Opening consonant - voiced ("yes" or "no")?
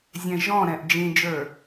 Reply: yes